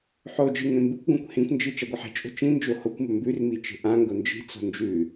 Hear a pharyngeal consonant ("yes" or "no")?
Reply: yes